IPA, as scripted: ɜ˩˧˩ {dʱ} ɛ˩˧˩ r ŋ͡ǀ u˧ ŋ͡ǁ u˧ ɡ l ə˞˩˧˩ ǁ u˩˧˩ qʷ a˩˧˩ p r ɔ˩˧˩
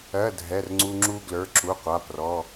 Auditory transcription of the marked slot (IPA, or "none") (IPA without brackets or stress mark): dʱ